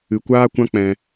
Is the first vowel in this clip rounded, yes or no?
no